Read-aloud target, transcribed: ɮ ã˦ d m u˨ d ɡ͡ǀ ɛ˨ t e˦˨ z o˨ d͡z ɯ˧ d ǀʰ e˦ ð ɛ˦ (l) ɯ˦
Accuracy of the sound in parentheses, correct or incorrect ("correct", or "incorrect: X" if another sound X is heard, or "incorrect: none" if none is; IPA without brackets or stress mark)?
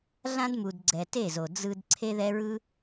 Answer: incorrect: ɹ